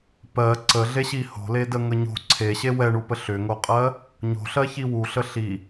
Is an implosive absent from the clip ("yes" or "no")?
yes